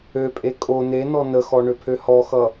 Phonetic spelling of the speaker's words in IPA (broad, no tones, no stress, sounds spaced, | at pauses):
ø pʼ e kʼ o n e n ɔ n ə x ɔ ɳ ø pʰ ø h ɔ x ʌ